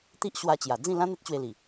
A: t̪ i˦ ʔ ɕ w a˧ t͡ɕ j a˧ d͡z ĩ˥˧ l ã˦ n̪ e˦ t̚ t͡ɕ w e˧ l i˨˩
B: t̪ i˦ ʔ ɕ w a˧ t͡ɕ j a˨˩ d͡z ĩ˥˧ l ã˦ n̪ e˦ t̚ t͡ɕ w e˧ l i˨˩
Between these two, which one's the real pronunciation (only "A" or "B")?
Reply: B